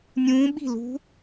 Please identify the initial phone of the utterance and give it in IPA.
nʲ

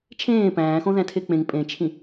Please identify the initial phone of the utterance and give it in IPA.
t͡ʃʰ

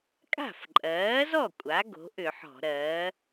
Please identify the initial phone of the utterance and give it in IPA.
kʼ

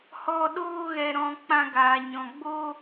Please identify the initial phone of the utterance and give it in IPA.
h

